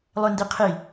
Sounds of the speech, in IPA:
lˠøndiqʰi

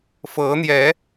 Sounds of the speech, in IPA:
fɤ˨˦n̪jɛ˨˦

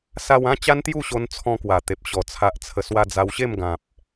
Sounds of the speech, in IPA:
sa˧wã˥˧ t͡ɕa˦nt̪ju˥˧ɕo˧n t͡sʰɔ̃˧kwa˨˩t̪e˨p̚ɕɔ˨˩ t͡sʰa˨ʔt͡sʰə˨˩swa˧ d͡za˧wɕe˥˧m ɡã˨p̚

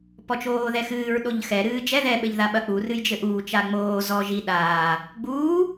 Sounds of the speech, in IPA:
pɔt͡ʃoːðɛxɨːɹ ɗoʎxɛ ɾɨːd͡ʒɛ ðɛ ɓɘʎðaɓɐk͡pu rɨjd͡ʒɘʔuː t͡ʃaŋ͡moː zɔ ʒi ɗaː | ɡ͡buː

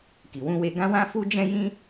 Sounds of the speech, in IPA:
ki˨wũ˧we˧ ɡã˧wã˧ fu˦d͡ʒɛ̃˦ jĩ˦

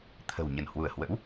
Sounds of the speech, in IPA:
t̪ʰə̤˨˩w ɲə˧˩nhwu˧˩ə̯hwə̰˧˥w

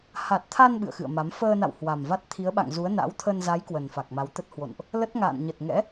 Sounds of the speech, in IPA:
ha˨˩t̚t̪ʰa˧n ɓɨ̰˧˨ə̯xɨ̰˧˨ə̯ma˨˦m fəː˧na̰˧˨w hwa˨˩mva˦˥t̚ t̪ʰi˨˦ə̯ɓa̰˧˨ŋzu˨˦ə̯ na̰˧˥wt̪ʰə˧n za˨˦j kwə˨˩nfa˨˩k̚ma˨˦wt̪ə˦˥t̚ hwo̰˧˨nʔ | lə˦˥t̚ŋa̰ː˧˨n ɲə˨˩t̚ŋɛ̰˧˥

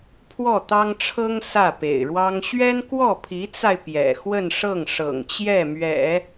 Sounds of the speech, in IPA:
pʰwɔ˥˩t̪ɑ˥ŋʈ͡ʂʰɤ˥ŋ sä˥˩pḛ˨˩ɪ̯ɻwɑ˥ŋ ɕɥɛ˥n kwɔ˥˩pʰi˧˥t͡sa˧ɪ̯ pjɛ̰˨˩ xwə˥˧nʂɤ˥˩ŋ ʂɤ̰˨˩ŋt͡ɕjɛ˥˩mɥɛ̰˨˩˦

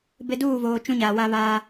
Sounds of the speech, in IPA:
bɪ˦ duː˦˨voː˨ t͡ʃũ˦ɲaː˨wa˦βaː˦

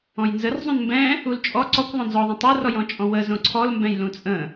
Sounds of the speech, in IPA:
ɔ̃jnzərzˤũn mbɛ̃ | ult͡ʃʼɔ ǀɔkʷ ðˤõnzɔðˤə̃ tˤorɔjɔ̃t͡ʃʼɔ̃ wəzõ ǀʰɔlmbɛ̃j lũt͡sʼə̃

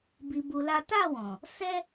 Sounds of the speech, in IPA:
bi˧bu˧la˦ ta˦˨wɔ̃˨ | sɛ˦

